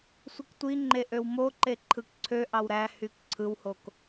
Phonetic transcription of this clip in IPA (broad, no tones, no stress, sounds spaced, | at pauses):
sʷ ɯ k tʷ i ŋ͡ǃ e ʔ ø w m o ǃ e ǃʰ ɯ k ǀʰ ø ʔ ɑ w ɾ æ h y k ǀʰ ɯ w h o k